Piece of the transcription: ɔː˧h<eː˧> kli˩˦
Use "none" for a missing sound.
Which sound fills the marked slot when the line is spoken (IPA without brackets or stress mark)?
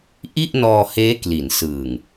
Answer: eː˦˥